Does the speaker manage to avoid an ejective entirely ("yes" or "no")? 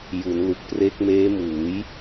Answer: yes